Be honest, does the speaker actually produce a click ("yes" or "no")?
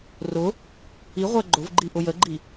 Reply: yes